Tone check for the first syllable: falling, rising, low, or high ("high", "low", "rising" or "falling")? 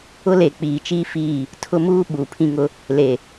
high